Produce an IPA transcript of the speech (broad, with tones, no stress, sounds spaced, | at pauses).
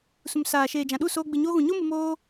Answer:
s ũ˨ m s aː˨ ʃ eː˨ d͡ʒ ã˨ ɗ u˦˨ s oː˧ ɡ͡b ɨ˨ ɲ oː˧ ɣ ũ˨ ɲ o˦ m ɨ˧ m oː˧